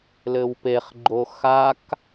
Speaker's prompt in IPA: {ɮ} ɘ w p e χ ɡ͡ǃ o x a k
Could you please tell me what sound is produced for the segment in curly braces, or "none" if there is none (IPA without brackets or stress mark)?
l